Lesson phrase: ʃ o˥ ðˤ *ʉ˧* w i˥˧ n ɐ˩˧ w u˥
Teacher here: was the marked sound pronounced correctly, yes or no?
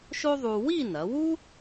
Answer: no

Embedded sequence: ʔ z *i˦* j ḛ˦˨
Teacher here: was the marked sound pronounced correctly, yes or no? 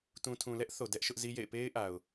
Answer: yes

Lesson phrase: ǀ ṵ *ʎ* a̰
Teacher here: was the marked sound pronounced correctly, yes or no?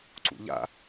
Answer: yes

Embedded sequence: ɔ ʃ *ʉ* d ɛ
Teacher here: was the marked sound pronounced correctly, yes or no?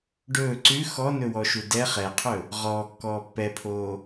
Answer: no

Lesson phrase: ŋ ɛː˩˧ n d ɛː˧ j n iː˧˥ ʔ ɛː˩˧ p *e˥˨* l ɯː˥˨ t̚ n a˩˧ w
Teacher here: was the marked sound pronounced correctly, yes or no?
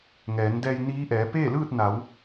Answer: no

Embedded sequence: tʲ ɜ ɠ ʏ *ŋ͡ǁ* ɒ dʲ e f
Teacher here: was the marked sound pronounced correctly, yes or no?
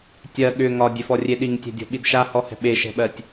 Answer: no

